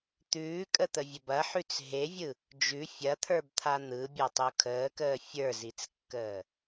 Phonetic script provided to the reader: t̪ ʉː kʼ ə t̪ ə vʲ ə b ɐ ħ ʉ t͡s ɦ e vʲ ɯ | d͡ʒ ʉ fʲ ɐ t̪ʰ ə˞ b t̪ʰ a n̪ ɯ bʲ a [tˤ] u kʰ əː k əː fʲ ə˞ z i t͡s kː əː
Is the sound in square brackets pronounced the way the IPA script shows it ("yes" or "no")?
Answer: yes